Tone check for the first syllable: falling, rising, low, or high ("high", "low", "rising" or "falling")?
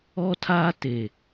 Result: high